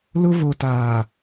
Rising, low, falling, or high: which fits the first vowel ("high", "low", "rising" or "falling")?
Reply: high